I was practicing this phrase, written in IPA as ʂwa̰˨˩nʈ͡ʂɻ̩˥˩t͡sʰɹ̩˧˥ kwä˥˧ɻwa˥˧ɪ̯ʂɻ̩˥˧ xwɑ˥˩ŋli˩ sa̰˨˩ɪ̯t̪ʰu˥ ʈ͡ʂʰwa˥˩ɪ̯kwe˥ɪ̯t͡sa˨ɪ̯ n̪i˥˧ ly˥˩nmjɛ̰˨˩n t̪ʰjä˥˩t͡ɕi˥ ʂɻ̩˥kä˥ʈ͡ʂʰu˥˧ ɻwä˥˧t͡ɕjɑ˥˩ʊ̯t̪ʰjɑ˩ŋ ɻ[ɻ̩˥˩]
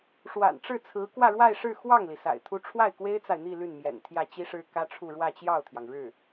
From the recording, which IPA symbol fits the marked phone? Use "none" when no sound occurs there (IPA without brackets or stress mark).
ɻ̩˥˩